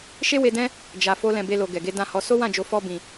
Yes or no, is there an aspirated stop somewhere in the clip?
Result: no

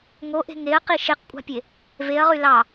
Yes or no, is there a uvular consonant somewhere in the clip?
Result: yes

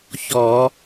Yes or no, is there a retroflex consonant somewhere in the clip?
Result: no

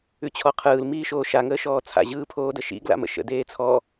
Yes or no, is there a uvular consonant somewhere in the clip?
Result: yes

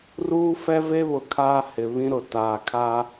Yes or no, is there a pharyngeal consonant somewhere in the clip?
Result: no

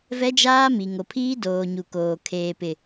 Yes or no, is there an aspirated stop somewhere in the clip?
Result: yes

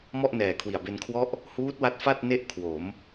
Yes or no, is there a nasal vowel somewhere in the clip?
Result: no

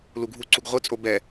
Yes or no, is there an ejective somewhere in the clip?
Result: yes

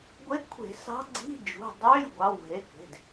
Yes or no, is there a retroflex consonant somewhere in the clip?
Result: no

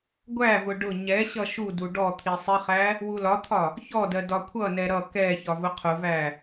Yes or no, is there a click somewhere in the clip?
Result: no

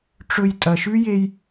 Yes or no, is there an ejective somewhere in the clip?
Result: yes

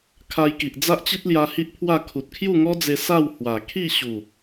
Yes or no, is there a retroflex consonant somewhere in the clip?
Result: no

